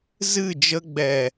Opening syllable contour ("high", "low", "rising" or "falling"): falling